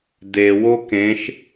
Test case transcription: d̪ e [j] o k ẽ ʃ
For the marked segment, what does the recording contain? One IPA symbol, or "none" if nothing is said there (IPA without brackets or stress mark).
w